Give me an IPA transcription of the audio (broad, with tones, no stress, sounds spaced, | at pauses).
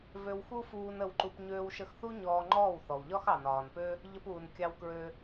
v ø˧ w x u˦ f uː˧ n ə˧ w ǃ u˧ p ɲ øː˧ w ʃ ə˧ x θ u˦ ɲ ɔː˧ ŋ͡ǃ ɔː˦˨ w θ ɔ˨ w ʎ ɒ˦ x ɑ˨ n ɒː˨ n p ø˦ | ʎ ə˧ p uː˨ n kʲ ɑ˧ w k ɹ ø˧